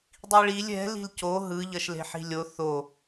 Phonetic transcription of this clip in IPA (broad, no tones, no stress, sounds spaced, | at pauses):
dˤ i ɭ i lʲ ɛ̤ l i̤ l c o ɦ ɯ ʎ ʌ ʃ l e̤ ħ i̤ lʲ o θ o